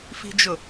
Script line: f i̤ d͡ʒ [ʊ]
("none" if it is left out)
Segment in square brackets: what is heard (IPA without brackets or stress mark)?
ʊ